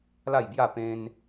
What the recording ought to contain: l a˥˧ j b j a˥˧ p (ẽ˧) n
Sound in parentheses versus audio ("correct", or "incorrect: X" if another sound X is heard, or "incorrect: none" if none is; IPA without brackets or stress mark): correct